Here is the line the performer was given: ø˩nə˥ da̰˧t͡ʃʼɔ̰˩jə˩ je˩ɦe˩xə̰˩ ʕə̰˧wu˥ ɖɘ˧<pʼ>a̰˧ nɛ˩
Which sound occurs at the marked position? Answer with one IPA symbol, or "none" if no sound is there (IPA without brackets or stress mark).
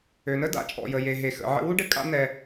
kʼ